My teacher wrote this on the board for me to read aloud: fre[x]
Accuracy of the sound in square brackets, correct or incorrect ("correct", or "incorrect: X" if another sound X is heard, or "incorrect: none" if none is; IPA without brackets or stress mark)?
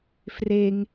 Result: incorrect: ŋ